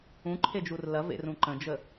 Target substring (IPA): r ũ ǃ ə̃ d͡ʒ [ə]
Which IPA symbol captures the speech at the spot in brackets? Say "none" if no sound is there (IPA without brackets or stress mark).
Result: ə